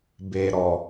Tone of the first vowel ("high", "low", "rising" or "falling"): low